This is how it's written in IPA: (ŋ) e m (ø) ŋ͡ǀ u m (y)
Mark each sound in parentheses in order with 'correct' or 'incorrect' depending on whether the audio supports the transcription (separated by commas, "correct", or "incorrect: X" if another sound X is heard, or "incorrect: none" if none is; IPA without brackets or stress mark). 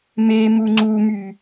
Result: incorrect: m, incorrect: u, correct